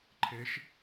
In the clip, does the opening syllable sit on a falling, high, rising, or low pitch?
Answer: rising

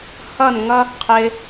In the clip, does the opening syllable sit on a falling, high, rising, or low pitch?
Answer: falling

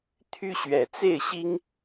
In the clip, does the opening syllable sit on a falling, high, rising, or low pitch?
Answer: high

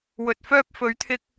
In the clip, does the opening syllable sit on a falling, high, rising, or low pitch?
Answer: low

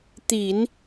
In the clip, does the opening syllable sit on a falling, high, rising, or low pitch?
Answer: low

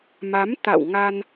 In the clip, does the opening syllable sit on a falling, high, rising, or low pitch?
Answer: rising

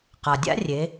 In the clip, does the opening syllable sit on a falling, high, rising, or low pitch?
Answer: low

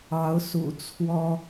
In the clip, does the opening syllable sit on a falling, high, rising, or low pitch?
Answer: rising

